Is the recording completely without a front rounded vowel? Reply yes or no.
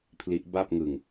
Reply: yes